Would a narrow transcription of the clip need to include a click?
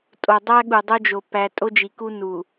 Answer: no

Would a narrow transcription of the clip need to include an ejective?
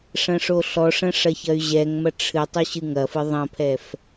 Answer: no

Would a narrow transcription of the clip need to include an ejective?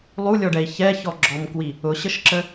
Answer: no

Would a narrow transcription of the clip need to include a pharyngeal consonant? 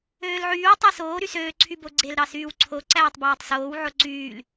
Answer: yes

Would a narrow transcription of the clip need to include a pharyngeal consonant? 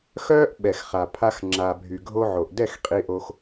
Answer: yes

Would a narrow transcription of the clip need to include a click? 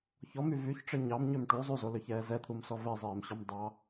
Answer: no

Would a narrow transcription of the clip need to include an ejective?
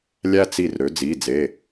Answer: no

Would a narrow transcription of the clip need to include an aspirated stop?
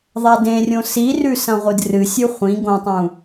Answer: no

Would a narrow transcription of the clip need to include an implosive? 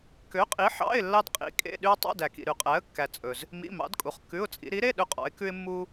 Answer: yes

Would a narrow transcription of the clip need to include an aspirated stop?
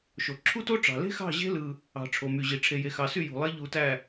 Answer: yes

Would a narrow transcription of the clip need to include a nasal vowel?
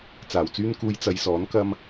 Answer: no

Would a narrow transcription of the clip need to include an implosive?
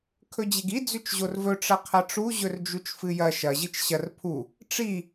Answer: no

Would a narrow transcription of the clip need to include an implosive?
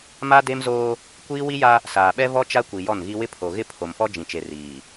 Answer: yes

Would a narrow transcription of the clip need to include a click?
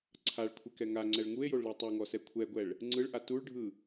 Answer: yes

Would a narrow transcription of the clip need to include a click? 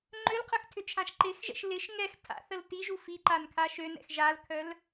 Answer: yes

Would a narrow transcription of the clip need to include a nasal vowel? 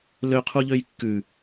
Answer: no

